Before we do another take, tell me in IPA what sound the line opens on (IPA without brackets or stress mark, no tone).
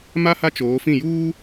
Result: m